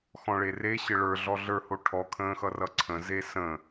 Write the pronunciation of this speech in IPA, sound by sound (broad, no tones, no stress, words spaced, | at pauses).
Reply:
xɔ̃ɭere ɕɘɭə˞ɮɔ ɮə˞ho ʈʰɔkʰə̃ːxʌ rʌǀʰə̃ zesə̃